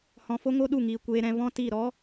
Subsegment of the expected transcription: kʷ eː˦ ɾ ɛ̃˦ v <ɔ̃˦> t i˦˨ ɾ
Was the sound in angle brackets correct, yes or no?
yes